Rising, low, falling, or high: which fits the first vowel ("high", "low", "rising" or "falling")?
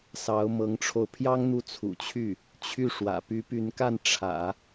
rising